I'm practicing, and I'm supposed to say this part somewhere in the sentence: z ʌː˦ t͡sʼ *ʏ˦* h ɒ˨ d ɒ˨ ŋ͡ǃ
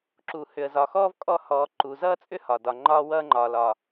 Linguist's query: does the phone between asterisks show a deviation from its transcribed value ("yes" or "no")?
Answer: no